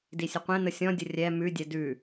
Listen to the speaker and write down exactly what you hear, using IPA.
d i sʲ ə qʷ ɛ̃ n̪ ə sʲ ɔ̃ dʲ ə rʲ ɛ m ʉ dʲ ɛ d ʉ

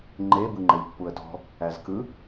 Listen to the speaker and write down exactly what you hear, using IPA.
ŋ͡ǃ e b ɯ ŋ͡ǃ ə lʲ pː u ə̯ t ɔ̤ | æ z k ɯ

